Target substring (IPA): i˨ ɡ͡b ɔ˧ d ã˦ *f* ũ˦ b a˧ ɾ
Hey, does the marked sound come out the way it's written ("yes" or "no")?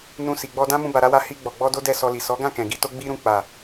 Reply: no